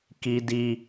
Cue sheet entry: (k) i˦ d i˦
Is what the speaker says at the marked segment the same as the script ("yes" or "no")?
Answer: yes